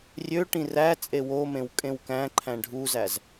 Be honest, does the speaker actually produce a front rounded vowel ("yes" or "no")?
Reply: yes